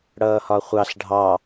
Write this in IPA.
ɽ ʌː h ɒ χʷ ɑ ɬ ɖʱ ɑ

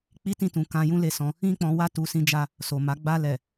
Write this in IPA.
k͡p i˦ t ĩ˦˨ t ũ˨ k ã˧ j ũ˦ l e˦˨ s ɔ̃˧ | ĩ˦ k͡p ɔ̃˧ w a˦ t u˧ s ĩ˦ d͡ʒ a˦ | s o˨ m a˨˦ ɡ͡b a˧ l ɛ˨

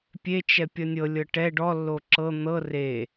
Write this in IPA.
pʲ e t͡ʃ ɛ pʲ ʌ nʲ ɤ lʲ ɤ ʈ ɛ ɖ ɔ lː o ǁ ɤ n̪ ɤ r e

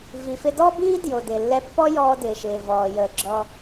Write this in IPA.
v i˩ f ɪ˧ d ɔ˥ b iː˥ d j o˩ d ɪ˩ lː ɛ˧ pː ɔ˥ j ɔː˧ d ɪː˩ ʃ ɪː˩ v ɔː˩ j əː˩ ɡ͡ǁ ɔː˧

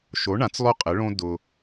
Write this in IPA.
ʃ o˨˥ ɳ ã˨˥ t͡s lˠ ʊ˦ qʼ ɪ˨˥ ɭ õ˦ d ʊ˦

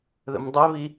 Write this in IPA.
ð ə̰ m dˤ ɛ β i

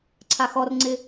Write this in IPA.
ǀʰ a x ɔ r ŋ͡ǀ ɪ

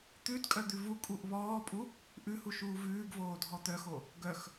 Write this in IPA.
t̪ ʉ d kʼ œ d̪ ʉ v u kʼ u ʔ β ɔː pʼ u | ʔ ʉ h u ʃ uː v ʉː ɡ v oː dʱ ɔ t̪ œ x o | ɡ œ x

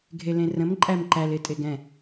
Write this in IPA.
ɡʱ e l ẽ r ə̃ m ǃʼ æ m ǃ æ l e tʼ e ɡ ɛ̃

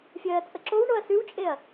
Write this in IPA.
fʲ ɜː t͡sʼ ə ǁ o w ɳ o ɐ̯ s ʉ w t͡ʃʼ e ɐ̯

